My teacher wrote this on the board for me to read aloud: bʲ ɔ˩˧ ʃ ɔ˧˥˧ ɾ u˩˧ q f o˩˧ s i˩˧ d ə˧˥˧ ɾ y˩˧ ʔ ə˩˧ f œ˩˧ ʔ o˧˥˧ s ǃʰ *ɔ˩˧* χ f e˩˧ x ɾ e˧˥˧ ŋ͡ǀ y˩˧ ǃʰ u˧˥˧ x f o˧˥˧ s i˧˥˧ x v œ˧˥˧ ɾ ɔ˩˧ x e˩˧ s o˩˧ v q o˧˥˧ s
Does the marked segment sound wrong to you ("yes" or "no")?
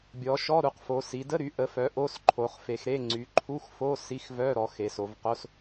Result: yes